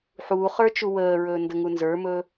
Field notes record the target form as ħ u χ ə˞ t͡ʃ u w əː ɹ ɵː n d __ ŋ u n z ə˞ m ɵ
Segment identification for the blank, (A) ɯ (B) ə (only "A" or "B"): B